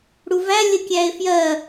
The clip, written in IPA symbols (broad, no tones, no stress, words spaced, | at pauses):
ɽuvæ lʲəkʲæe̯fjɜ